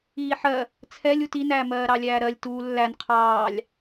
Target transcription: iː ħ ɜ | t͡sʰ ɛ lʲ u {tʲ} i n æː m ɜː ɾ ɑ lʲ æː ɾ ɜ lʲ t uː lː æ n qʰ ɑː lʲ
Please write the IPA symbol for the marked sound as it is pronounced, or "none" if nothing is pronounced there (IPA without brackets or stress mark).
t